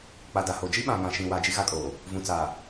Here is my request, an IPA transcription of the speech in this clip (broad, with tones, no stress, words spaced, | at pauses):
k͡pa˨ da˨ho˨ d͡ʒi˦ɓã˨ ŋã˨ ʃĩ˨wa˨ d͡ʒi˦ɣa˦kʼoː˨ | vũ˨t͡saː˨